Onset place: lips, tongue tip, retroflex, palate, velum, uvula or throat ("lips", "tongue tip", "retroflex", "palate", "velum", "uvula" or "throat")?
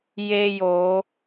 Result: palate